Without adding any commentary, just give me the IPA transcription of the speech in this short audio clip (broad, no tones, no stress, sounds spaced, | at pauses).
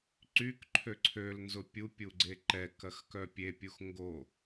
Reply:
ǀ y k ǃʰ ø ǀʰ ø l n z ʊ pʲ u pʲ u ɡ͡ǀ e ǃ ɛ k ɐ x k œ pʲ e pʲ u x ŋ ɡ o